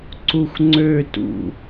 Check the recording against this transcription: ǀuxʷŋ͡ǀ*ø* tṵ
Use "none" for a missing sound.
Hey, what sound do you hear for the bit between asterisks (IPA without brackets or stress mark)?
ø